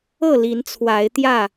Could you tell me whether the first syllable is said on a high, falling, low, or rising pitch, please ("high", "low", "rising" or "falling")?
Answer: falling